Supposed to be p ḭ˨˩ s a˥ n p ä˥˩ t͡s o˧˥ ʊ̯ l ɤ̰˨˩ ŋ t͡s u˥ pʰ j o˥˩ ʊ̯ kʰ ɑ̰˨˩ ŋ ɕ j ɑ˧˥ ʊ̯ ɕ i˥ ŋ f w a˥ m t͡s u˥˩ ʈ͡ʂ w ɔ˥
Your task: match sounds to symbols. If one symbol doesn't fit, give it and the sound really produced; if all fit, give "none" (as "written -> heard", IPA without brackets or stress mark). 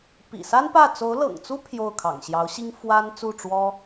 m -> n